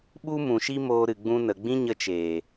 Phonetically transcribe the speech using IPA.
ɓ u˦ m ũ˨ ʃ i˦ m oː˧ ɾ ɨ˨ ɡ͡b ũ˧ n ə˨ ɡ͡b ĩ˦ ɲ ə˧ t͡ʃ eː˨

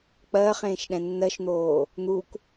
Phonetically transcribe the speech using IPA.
k͡p ɜː χ ẽː ʃ ɗ ɛ̃ nː ɜ ʃ n̪ oː | n̪ u k

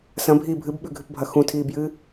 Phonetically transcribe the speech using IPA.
s ɐ̃ bʱ iː bʱ ɨ b ɓ ʉ ɡʱ ɨ p bʱ ɐ x ũ tʰ iː b j ɨː

